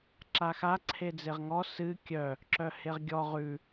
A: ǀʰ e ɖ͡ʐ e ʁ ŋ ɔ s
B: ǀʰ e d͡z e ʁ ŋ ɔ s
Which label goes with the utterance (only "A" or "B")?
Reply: B